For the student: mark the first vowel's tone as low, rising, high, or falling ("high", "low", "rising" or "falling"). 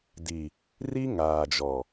low